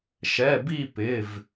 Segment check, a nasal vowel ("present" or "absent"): absent